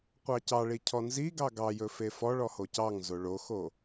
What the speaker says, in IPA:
qʷ ɑ c ɑ ɭ i cʰ ɔ n z i ɡ ɑ ɡ ɑ j ɵ f e f ɔ ɭ ɔ h o c ɑ ŋ z o ɭ o x o

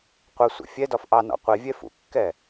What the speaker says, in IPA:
qʷ ə sʷ ə̰ fʲ ɛ d ɒ f ʔ ɑ n ɔ̰ qʷ i vʲ ɛ f ṵ kː ɛ

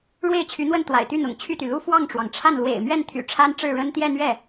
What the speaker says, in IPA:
ɻ w e˥˩ ɪ̯ t͡ɕʰ y˧˥ n̪ w ə˥˩ n t̪ w a̰˨˩ ɪ̯ t̪ y˥˩ n̪ ʊ̰˨˩ ŋ t͡ɕʰ y˥˩ t̪ y˩ l u˥ f w ɑ˥˩ ŋ ʈ͡ʂ w ɑ˩ ŋ ʈ͡ʂʰ a˥˩ n l w ḛ˨˩ ɪ̯ m ɥ ɛ˥˩ n t̪ʰ y̰˨˩ ʈ͡ʂʰ a˥ n ʈ͡ʂ ɻ̩˥˩ ɻ ə˥ n t̪ j ɛ˥˧ n̪ ɥ ɛ˥˩

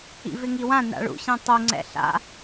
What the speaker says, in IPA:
ḭ v ɪ ŋ i w ã n a̰ ɭ ṵ ɕ ĩ tˤ u ŋ͡ǀ ɛ̰ ɬ a̰

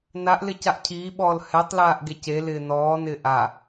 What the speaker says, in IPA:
n a ʔ l ɪ c a ʔ cʰ iː ɓ ɔː l h ɛ tˤ l aː ʔ ɡ e c e l ɪː n ɔː n ɪ ʔ a

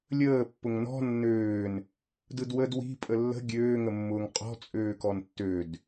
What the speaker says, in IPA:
lʲ əː pː ʊ ŋ n ɔ̤ nː øː n | d ɯ d w ə d w i̤ pʼ ə lː ə̤ ɡʲ øː ŋ ə mː ʊː ŋ qʼ ɔ̤ t͡sʼ øː k ɔ n tː ø d

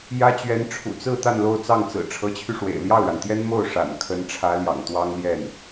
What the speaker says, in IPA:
j ä˥ t͡ɕ ɥ ɛ˧˥ n ʈ͡ʂʰ ṵ˨˩ t͡s ɹ̩˥˧ t̪ a˥˧ n l o˥˧ ʊ̯ t͡s ɑ˥˩ ŋ t͡s ɹ̩˨˩ ʈ͡ʂʰ ɤ˧˥ t͡ɕʰ y˧ ʂ w ḛ˨˩ ɪ̯ l j ɑ˥˩ ʊ̯ ɻ a˩ n t̪ j ɛ˥ n m o˥˩ ʊ̯ ʂ a̰˨˩ n kʰ ə˧˥ n ʈ͡ʂʰ ä˧˥ l j ɑ̰˨˩ ŋ t̪ w ɑ˥ ŋ l j ɛ˥˩ n

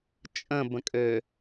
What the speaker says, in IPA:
t͡ʃʼ ə̃ b ə̃ kʼ ø

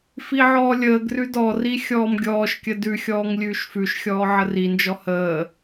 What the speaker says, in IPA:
f i ʕ ɔː lʲ əː ɡ r ʉ d ɔ r i xʲ ɔː m ɡʲ ɔː ʃ kʲ ə d ʉ xʲ ɔː ŋ lʲ ʉː ʃ f ʉ ʃ xʲ ɔː ʕ ə r i n d͡ʒ ɔ h əː

